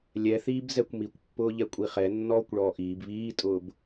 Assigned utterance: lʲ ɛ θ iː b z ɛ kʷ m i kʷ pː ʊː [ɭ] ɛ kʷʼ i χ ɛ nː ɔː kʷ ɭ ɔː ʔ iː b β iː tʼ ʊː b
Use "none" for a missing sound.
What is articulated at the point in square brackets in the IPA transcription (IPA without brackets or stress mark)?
ʎ